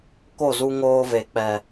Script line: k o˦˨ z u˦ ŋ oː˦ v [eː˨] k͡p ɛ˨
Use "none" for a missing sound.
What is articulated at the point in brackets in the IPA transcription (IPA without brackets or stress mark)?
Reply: e˨